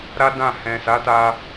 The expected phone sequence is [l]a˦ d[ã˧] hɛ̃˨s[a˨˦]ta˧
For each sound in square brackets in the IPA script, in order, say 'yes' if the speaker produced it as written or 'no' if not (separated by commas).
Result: no, no, yes